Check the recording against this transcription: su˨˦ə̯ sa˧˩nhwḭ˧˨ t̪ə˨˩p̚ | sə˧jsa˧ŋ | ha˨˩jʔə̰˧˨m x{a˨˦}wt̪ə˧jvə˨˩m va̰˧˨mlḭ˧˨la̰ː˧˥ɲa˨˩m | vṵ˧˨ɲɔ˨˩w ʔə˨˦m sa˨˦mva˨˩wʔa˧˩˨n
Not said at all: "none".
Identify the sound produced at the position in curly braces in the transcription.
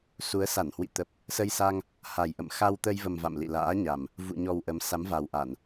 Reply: a˧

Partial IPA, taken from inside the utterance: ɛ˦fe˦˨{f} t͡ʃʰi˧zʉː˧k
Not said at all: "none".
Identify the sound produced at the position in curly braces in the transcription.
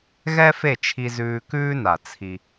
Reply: none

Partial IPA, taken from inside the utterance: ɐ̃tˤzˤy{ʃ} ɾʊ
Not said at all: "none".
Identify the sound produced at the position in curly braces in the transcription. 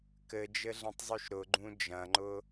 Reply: ʃ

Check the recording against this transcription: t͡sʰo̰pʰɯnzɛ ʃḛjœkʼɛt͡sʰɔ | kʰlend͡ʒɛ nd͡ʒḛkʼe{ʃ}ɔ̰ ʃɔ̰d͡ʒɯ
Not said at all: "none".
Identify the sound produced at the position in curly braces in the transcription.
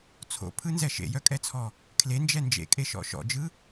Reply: ʃ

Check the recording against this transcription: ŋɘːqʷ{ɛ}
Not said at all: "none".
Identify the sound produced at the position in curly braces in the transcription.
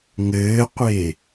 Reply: e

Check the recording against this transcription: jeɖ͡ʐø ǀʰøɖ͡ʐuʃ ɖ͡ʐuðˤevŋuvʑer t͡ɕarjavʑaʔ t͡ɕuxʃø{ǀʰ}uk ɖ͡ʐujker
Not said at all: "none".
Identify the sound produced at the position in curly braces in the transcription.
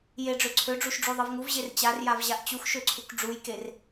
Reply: ǀʰ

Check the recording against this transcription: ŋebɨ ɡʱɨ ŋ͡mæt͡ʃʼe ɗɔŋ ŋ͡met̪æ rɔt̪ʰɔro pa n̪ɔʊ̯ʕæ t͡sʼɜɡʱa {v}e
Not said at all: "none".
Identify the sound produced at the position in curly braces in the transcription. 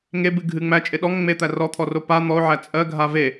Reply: v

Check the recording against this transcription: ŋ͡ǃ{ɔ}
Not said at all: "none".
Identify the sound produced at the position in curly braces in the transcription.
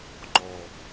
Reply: ɔ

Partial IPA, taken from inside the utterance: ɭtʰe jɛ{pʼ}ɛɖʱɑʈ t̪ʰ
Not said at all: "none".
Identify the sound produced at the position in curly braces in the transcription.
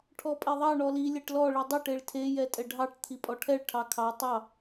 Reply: tʼ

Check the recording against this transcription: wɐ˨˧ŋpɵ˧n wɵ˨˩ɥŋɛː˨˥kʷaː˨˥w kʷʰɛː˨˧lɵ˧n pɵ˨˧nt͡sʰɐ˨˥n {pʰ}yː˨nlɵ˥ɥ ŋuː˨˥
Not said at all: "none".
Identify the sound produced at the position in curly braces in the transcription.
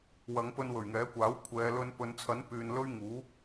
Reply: p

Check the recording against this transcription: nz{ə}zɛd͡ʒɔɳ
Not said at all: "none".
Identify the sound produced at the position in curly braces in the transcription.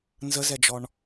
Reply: ə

